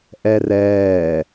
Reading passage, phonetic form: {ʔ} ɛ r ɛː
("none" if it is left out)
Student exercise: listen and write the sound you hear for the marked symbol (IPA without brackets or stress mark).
ʔ